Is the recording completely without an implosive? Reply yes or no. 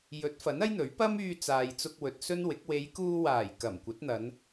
yes